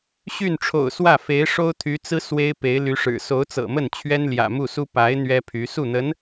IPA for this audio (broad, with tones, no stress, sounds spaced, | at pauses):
ɕ y˥˩ n ʈ͡ʂʰ o̰˨˩ ʊ̯ s w ä˥˩ f e˧˥ ɪ̯ ʂ o˥ ʊ̯ t̪ʰ y˧˥ t͡s ɹ̩˥ s w e˥ ɪ̯ p e˧˥ ɪ̯ l y˧˥ ʂ ɻ̩˨˩ s o˧˥ ʊ̯ t͡s ɤ̰˨˩ m ə˥˩ n t͡ɕʰ ɥ ɛ˥ n l j ä̰˨˩ m u˥˩ s u˥ p a˧˥ ɪ̯ n̪ ɥ ɛ˥ pʰ y˧˥ s u˥˩ n̪ ə˧˥ n